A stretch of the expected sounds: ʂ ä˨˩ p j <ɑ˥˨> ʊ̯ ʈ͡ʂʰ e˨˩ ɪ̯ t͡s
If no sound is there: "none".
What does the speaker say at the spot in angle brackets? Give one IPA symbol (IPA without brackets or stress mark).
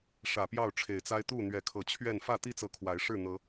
ɑ˥˨